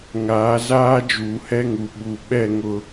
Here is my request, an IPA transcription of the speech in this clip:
ŋ aː˨˦ z aː˦ d͡ʒ uː˨ h ɛ˦ ŋ u˨ ɓ u˨ ɓ ɛ˦˨ ŋ ʊ˦

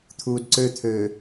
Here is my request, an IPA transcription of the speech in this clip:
t̪ʰ uː d ǀ ø t̪ʰ øː

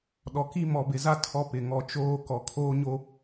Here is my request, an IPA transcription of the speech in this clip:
ɗ ɔ˨ k i˦ m ɔ˨ b ɪ˨ z a˦ tʰ ɔ˦ p ɪ˨ ŋ ɔ˨ t͡ʃ oː˦ k ɔ˨ kʰ oː˦ ɲ o˦

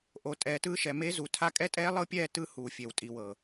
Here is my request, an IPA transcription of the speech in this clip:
ʔ o˨ tʼ ɛː˨ t ɯː˦ ʃ ɛ˨ m e˦ z u˨ tʰ a˦ kʼ ɛ˦ tʼ ɛː˦ lˠ ɤ˦ pʲ ɛː˦˨ t ɯ˦ h uː˨ fʲ e˨ w tʼ i˨ w ɤ˨

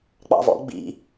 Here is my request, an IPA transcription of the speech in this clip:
k͡p ɑ̰ v ɔ̰ ɡ͡b ḭ

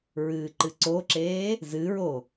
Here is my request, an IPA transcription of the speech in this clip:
ɹ ɨː ǃ ɨ ǀ o ǁ eː | z ɨ ɹ o

